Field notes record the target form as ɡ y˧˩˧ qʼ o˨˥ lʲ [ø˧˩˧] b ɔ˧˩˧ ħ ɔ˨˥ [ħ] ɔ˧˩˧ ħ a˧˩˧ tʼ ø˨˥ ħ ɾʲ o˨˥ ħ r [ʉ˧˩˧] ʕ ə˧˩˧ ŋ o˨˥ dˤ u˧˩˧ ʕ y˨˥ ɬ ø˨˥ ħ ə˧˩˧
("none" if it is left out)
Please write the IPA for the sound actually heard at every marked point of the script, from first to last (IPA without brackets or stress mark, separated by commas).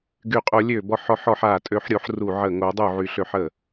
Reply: ø˧˩˧, ħ, u˧˩˧